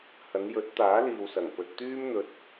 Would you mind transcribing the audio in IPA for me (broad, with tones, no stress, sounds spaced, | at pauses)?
h ɐ˨˧ n j ɵ˨˥ t̚ t̪ aː˨˥ l iː˨ w s ɐ˨˩ ŋ p ɵ˧ t̚ t̪ yː˥ m n̪ ɵ˧ t̚